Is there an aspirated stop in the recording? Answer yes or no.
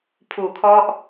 yes